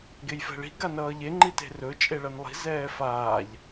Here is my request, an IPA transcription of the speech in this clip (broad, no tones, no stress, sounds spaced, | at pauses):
ɡ e j f ɛ̤ ɭ i̤ ɡ a n ʌː ʎ e ŋ͡ǃ i t e̤ r ɵ t͡ʃʼ e ɭ ʌ n lˠ i̤ z ɛː f aː ʎ